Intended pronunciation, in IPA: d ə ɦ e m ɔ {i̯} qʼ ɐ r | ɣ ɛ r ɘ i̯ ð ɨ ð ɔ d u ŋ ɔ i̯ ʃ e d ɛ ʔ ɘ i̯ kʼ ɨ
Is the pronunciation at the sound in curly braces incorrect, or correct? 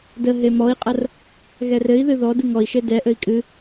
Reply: correct